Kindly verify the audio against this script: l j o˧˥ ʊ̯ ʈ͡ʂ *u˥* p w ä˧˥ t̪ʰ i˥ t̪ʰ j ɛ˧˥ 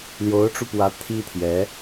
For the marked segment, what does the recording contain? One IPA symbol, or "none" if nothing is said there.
u˧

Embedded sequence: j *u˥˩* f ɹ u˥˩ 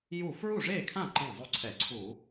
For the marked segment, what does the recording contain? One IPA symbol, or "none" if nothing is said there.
u˥˩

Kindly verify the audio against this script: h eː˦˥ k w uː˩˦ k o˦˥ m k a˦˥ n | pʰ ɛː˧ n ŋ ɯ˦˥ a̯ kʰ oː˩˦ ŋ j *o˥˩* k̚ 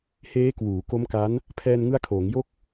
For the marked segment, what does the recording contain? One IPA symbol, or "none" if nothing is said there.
o˥˩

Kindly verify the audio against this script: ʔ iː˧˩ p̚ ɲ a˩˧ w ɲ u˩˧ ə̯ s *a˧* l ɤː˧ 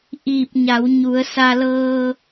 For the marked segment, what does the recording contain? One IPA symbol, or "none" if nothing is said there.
a˧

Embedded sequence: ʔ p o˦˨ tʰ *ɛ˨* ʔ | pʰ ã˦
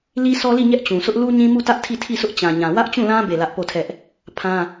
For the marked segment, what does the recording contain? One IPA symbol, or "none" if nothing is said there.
ɛ˦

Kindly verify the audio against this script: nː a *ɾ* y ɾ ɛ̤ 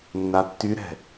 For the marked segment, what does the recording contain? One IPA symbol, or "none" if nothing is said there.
tː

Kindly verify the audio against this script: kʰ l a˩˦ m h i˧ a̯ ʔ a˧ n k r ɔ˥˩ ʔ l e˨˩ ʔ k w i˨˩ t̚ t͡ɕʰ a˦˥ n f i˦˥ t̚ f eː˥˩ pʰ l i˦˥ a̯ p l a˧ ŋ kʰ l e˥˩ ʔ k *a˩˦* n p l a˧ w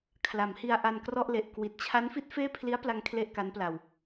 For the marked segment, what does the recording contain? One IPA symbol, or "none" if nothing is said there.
a˦˥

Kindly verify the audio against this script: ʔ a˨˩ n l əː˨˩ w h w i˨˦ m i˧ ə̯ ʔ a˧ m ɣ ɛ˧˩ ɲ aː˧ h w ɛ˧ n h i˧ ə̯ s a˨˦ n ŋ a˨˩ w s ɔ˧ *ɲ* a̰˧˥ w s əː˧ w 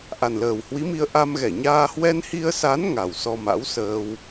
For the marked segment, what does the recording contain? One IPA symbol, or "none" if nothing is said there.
m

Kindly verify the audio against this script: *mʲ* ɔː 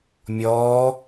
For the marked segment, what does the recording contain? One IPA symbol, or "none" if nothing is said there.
mʲ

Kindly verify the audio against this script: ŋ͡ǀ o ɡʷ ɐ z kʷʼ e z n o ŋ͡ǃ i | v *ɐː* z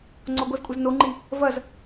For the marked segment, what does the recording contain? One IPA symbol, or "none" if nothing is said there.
ɐ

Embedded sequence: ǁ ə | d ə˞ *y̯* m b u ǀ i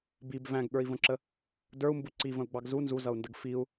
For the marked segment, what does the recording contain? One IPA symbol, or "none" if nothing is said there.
u̯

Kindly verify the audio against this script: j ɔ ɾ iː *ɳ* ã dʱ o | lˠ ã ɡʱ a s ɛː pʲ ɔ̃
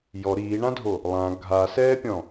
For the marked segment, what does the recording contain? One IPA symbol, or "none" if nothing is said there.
ɳ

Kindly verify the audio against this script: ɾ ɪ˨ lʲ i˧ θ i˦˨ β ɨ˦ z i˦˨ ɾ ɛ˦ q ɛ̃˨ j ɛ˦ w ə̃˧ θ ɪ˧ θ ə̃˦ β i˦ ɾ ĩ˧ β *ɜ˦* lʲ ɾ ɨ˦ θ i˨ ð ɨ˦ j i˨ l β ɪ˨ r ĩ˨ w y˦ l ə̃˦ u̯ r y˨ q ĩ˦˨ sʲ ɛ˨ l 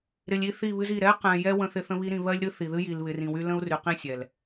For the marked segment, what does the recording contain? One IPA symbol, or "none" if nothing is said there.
ɜ˦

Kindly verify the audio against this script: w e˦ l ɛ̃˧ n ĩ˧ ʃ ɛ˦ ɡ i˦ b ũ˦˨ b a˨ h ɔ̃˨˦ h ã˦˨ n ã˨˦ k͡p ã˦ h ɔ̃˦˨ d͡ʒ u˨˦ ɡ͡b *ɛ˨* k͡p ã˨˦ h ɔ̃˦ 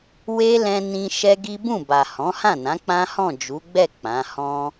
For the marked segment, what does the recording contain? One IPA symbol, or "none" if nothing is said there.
ɛ˦˨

